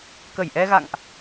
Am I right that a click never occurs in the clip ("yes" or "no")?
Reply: yes